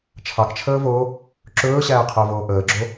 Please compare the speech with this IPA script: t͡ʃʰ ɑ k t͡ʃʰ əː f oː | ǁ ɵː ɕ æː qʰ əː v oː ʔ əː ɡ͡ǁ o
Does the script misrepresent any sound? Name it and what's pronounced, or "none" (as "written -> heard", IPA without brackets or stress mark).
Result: f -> v